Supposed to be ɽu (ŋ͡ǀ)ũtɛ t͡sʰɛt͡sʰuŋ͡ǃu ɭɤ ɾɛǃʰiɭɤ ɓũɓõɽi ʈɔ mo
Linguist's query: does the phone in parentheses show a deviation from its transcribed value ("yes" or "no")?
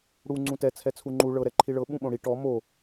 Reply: no